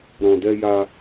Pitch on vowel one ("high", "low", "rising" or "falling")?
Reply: low